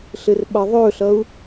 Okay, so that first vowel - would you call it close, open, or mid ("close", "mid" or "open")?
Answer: mid